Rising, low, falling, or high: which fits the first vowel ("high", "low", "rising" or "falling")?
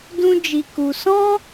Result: high